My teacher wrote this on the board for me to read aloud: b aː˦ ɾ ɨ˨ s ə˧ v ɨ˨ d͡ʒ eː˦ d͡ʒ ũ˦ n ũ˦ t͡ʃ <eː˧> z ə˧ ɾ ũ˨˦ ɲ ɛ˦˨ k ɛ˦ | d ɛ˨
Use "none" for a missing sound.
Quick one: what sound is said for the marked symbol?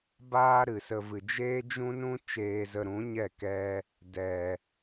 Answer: eː˧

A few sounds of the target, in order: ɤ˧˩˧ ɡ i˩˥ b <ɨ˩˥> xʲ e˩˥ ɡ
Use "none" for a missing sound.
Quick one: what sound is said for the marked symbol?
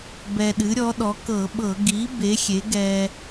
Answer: e˩˥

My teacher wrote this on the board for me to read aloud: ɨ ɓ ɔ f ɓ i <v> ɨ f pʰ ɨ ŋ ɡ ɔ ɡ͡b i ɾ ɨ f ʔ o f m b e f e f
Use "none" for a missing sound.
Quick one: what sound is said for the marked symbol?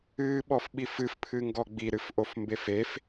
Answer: f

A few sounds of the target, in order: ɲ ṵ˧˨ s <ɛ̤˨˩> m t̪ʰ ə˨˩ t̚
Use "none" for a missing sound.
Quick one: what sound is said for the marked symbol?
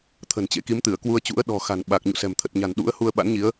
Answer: ɛ̤˨˩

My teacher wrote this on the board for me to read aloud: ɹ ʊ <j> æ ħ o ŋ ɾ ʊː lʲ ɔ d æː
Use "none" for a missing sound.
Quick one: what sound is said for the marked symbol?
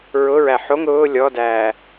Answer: ɹ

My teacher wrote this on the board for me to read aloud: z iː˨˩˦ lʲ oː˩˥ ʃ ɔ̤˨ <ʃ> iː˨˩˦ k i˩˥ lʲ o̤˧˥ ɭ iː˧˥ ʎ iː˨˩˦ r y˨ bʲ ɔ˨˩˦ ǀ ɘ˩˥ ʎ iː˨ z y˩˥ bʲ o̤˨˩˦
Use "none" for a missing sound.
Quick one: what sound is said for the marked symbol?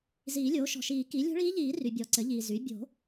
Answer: ʃ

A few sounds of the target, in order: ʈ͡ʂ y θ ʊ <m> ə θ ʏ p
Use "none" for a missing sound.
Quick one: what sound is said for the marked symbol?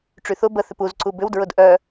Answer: b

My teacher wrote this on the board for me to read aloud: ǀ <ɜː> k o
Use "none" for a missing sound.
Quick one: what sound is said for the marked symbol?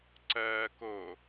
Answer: ɜː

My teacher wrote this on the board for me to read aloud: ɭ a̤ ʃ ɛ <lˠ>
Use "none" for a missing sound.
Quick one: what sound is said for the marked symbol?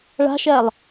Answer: lˠ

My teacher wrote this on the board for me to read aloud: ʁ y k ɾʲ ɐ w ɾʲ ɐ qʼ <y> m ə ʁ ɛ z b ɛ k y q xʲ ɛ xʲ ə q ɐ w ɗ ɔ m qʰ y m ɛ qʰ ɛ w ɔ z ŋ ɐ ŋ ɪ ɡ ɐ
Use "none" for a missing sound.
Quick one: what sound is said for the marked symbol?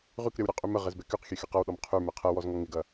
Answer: y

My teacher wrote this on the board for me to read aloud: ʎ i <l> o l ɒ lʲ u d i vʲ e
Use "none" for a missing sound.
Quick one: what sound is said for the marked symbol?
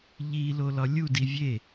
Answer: l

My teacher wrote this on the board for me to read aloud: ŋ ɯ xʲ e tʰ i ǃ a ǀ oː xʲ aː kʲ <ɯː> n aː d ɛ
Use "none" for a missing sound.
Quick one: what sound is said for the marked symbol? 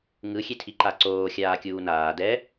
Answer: uː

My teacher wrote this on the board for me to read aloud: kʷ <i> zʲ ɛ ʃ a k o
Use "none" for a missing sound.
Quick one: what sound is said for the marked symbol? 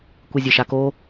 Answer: i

